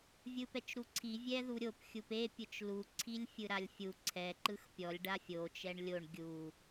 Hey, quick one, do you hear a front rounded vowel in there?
no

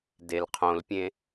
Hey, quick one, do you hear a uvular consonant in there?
yes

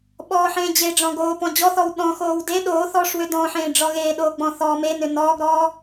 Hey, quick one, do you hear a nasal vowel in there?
yes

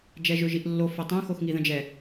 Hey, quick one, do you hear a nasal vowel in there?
yes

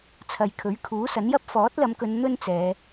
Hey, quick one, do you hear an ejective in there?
no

